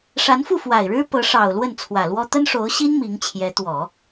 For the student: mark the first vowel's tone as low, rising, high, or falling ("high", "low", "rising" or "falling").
rising